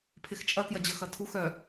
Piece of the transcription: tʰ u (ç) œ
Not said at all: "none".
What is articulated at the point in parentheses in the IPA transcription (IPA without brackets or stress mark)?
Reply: x